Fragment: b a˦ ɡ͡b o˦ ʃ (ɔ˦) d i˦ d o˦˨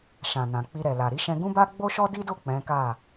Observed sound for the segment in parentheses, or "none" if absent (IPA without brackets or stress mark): ɔ˦